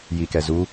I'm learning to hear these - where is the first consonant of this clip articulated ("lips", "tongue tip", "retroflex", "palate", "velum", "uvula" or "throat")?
palate